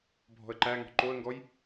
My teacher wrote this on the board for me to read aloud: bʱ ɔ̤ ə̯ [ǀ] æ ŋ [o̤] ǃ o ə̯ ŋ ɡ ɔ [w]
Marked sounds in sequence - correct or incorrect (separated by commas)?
incorrect, incorrect, incorrect